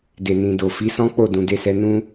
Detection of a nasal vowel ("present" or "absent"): present